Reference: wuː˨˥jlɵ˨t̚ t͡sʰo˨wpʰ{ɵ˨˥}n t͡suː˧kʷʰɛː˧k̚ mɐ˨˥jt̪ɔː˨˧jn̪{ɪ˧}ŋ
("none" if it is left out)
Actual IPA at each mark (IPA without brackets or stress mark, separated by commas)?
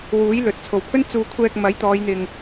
ɵ˥, ɪ˨